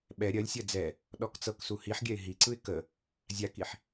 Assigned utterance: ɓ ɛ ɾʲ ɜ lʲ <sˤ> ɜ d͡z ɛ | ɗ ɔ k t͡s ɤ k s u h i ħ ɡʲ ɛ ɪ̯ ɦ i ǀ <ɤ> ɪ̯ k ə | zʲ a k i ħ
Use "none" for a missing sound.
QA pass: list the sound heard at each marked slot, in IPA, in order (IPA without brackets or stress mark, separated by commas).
sʲ, ɯ